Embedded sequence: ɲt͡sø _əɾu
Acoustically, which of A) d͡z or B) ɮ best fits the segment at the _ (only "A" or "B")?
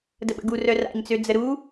A